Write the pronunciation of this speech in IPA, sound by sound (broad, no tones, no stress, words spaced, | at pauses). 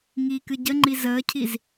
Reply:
ŋiːkɨɟəŋ͡ǃi zəːcʰiz